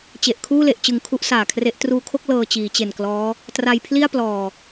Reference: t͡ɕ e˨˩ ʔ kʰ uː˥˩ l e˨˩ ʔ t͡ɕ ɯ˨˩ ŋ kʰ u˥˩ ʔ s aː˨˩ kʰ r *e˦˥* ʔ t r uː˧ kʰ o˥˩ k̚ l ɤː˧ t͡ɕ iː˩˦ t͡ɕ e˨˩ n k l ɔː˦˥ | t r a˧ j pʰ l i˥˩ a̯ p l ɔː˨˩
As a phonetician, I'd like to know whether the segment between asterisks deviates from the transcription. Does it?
no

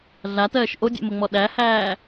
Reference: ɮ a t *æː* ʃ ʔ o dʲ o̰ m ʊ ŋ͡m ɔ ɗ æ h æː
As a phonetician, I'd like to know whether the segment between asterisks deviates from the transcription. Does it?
yes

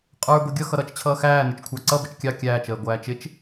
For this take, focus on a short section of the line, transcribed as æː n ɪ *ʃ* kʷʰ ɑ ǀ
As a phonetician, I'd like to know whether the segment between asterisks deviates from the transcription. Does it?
yes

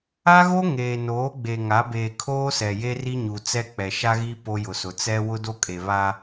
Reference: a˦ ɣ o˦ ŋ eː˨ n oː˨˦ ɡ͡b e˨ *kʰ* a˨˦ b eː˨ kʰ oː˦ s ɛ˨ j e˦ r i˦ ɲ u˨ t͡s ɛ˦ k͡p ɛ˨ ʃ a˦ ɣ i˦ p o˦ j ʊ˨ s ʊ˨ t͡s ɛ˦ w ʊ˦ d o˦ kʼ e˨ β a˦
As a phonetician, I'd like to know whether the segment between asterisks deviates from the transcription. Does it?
yes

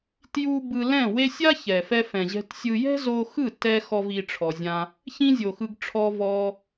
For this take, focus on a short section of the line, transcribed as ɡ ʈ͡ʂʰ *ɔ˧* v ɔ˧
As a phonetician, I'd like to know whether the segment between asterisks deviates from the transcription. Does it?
no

